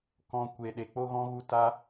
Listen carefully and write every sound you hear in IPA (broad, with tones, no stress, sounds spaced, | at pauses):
k ɔ̃˨ kʷ e˨ ɗ e˨ k͡p o˦ ɣ ɔ̃˦ ɣ u˧ t a˧